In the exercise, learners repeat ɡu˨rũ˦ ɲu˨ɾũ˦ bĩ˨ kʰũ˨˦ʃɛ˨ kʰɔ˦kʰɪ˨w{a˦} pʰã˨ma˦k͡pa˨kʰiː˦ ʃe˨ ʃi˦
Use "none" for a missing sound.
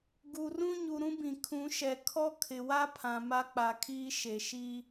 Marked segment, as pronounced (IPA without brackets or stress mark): a˦